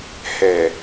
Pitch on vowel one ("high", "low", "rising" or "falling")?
low